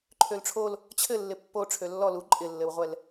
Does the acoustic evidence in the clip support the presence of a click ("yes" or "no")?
yes